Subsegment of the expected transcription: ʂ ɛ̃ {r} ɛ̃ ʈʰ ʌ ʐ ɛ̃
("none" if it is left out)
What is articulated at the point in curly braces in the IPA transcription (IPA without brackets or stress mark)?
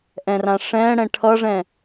ɽ